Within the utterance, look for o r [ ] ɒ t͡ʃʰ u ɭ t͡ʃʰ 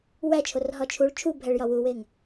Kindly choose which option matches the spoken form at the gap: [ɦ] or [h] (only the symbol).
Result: ɦ